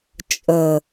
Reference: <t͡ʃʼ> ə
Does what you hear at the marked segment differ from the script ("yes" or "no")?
no